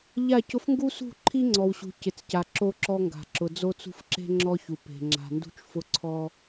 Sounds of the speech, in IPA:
ʎa˦˨cʊ˦f ŋɡu˦sṳ˦˨ ǃʰi˦ŋ͡ǀɔ˨wɕṳ˨ cɪ˨t͡sca˨ ǁo˦ǁɔ˦ŋɡa̤˨ ǁʊ˨d͡zo˦t͡sṳ˦fǁe̤˦ ŋ͡ǁɔ˦çu˨ pe̤˨ ŋ͡ǁa̤˨ndṳ˦t͡ʃfʊ˦ ǀʰɔ˦

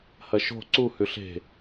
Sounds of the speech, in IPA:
hɐʃo̤ ǀu hʉɬe̤

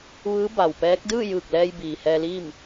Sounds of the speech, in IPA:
ʋɯː˧˥ba˩wpɛː˧˥k̚ dɯː˥˨jɯː˧˩k̚ lɛː˧j biː˩hɛː˧liː˥˨m

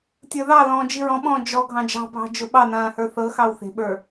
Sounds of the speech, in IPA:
tʲə˞ðɑlɔ̃ː d͡ʒiɹɔ̃ɓɔ̃ː d͡ʒɔ ɡʱɑ̃d͡ʒɑ̤bʱɑ̤ d͡ʒʊɓɑnãː hə˞θɤxɑw θe̤ɓə˞

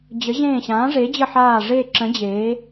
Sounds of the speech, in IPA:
d͡ʑə˨˥ ʑẽː˦˨ɕãː˨˥ʐe˨˥d͡ʑə˦˨ ħaː˦˨ʐe˦˨ǁə̃˨˥ d͡ʑeː˨˥

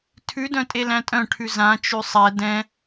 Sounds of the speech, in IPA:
tʰʉdœ̃tʼelæ̃ tʼœ̃ʈʰʉ zãt͡ʃʉ sˤɛ dɛ̃

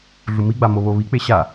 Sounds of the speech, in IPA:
ɮumiɡ͡ba moβoβik͡pe ɕa

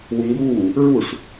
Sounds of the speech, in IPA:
wuŋɡuː | ɹuʂ

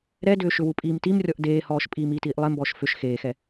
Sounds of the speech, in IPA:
ɾɛdʏː ʃʏwupʼiːmtim rʲɔʔdeːhɔːʃ pʼiːmiːtiːʔlˠe mbɔːʃfʏʃ xeːxɛ

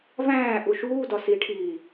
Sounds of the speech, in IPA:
væ̃ːʔu ʃuːdɒ siʈʰiː

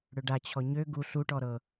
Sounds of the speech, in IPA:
ɽøɖa t͡ɕʰɔɲø ɡu ɬuʈɔ ɾɤ

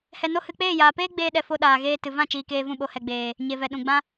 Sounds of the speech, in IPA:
hɛ˧no˦hɨ˧ k͡peː˦˨jaː˨peː˦ ɡ͡beː˧ɗɛ˨ fo˧ɗaː˨ɣeː˧ tɨ˨vã˦˨t͡ʃiː˨ keː˧vũ˦˨ɓo˧ hɛ˨ɡ͡beː˨ | ɲe˨vɛ˨ ɗũ˨ɡ͡bã˦

